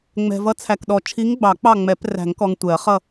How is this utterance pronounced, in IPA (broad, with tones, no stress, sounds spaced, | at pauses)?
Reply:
ŋ͡m ɛ̤˨ v ʌ˧˥ t͡sʰ æ˨ k ɗ ɔ˨ t͡ʃʰ i˧˥ ŋ ɡ͡b ɑ˨˩˦ k͡p ɑ˦˨ ŋ͡m ɛ˨˩˦ p r æ̤˨˩˦ ŋ k ɔ˨ ŋ tʷ ɛ˨˩˦ ɐ̯ χ ʌ˦˨